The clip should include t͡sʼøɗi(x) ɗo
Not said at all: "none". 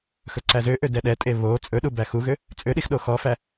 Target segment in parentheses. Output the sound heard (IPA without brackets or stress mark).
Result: x